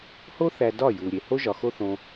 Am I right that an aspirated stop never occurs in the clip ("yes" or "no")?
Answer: yes